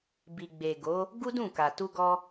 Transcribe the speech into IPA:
b i˨ ɡ͡b e˨ ɡ o˨˦ | ɡ u˦ d ũ˦˨ k a˨ t u˧ ɡ ɔ˧

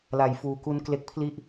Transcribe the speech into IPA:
l a˨˩ j f uː˨˩ k u˦˥ n k l e˦˥ k̚ pʰ l i˥˩ ʔ

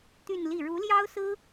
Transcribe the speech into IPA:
t̪ y˥˧ n l i˥˩ ɻ u˧˥ l j ɑ˥ ʊ̯ s ɹ̩˥

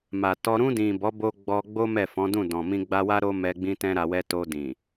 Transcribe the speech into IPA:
m a˨ t ɔ˧ ɾ ũ˧ d ĩ˨ b ɔ˨˦ b o˧ ɡ͡b ɔ˧ ɡ͡b o˦ m ɛ˦˨ f ɔ̃˨˦ d ũ˦˨ d ɔ̃˨ m ĩ˧ ɡ͡b a˧ w a˦ ɾ o˦ m ɛ˧ ɡ͡b ĩ˧ t ɛ̃˧ ɾ a˧ w ɛ˦ t o˧ d ĩ˨

